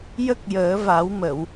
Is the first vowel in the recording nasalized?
no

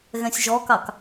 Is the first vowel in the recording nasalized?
yes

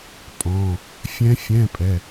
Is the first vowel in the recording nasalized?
yes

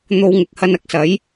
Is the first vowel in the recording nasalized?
no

